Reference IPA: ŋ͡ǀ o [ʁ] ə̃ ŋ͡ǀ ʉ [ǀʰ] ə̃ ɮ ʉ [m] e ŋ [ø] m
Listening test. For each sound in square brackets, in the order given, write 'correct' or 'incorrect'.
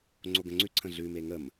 incorrect: ɡ, correct, correct, incorrect: ə

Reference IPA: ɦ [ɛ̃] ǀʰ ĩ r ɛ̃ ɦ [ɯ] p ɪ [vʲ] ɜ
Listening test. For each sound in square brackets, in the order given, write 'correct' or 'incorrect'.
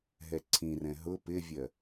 incorrect: ɛ, incorrect: ʊ, correct

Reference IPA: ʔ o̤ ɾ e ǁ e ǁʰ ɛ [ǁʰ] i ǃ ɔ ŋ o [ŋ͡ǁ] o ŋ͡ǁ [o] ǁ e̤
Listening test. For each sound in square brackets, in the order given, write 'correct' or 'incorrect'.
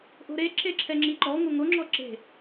incorrect: ŋ͡ǁ, incorrect: ŋ, incorrect: ɔ

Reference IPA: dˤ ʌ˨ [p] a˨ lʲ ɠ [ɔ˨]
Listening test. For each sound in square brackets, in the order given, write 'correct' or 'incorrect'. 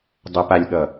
correct, incorrect: ʌ˨

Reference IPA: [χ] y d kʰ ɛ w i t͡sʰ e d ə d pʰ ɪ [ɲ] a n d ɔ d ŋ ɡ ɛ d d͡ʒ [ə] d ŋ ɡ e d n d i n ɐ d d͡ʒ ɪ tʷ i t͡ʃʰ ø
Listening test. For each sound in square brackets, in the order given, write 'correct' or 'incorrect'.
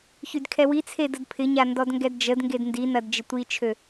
incorrect: ç, correct, correct

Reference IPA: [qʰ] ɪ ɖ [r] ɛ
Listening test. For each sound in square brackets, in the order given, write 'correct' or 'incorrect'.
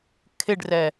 incorrect: kʰ, correct

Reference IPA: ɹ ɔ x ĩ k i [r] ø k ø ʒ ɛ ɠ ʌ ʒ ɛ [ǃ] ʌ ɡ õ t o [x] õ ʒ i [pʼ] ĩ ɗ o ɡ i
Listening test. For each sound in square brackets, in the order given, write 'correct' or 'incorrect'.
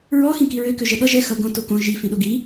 incorrect: ɹ, incorrect: x, incorrect: k, incorrect: f

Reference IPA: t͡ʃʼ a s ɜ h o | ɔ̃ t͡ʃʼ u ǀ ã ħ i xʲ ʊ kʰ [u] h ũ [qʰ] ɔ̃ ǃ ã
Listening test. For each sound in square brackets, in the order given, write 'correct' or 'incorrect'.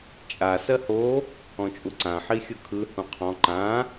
incorrect: ɯ, correct

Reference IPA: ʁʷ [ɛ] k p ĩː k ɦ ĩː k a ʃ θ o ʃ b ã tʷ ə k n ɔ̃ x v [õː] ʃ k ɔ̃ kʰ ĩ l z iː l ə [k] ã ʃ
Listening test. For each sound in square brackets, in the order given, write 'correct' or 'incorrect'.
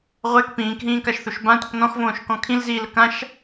correct, correct, correct

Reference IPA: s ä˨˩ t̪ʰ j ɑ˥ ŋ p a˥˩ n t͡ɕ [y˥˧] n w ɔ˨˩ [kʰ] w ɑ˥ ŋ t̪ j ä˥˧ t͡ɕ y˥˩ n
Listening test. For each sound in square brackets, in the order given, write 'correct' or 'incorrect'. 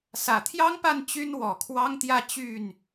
incorrect: y˥, correct

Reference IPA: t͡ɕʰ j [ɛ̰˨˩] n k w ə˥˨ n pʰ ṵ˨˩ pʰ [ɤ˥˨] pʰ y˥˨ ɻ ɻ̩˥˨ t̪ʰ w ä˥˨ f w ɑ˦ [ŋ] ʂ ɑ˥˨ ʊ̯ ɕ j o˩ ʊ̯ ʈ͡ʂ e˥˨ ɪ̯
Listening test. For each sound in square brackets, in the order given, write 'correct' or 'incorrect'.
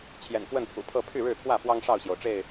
correct, correct, correct

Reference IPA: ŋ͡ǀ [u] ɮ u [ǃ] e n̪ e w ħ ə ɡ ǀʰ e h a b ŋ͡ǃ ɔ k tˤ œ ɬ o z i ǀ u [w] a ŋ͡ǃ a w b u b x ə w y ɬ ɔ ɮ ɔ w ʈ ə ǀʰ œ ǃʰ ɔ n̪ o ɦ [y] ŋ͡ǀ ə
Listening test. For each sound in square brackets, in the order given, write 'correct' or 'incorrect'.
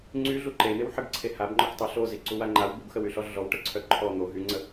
incorrect: y, correct, correct, correct

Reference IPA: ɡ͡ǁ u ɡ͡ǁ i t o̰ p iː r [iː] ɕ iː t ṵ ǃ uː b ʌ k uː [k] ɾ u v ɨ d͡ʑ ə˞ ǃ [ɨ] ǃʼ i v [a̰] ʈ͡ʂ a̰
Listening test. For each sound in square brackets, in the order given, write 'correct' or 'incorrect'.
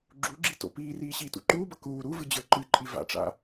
correct, incorrect: none, correct, correct

